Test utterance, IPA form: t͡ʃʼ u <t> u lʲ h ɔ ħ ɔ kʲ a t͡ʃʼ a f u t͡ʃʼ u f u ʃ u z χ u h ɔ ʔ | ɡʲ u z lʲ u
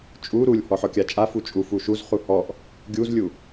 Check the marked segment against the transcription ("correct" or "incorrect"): incorrect